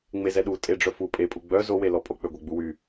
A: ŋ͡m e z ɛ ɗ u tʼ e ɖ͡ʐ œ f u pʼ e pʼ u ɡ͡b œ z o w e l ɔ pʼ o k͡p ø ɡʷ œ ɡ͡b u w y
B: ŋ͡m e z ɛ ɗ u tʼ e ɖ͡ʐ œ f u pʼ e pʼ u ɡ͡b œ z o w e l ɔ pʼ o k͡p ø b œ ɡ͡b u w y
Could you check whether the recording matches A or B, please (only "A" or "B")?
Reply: A